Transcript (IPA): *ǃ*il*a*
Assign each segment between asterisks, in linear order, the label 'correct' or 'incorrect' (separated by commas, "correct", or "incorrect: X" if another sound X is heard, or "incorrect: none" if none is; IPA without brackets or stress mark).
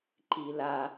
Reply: correct, correct